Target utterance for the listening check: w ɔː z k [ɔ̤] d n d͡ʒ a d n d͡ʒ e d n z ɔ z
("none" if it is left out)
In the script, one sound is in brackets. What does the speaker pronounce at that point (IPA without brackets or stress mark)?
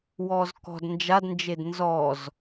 ɔ̤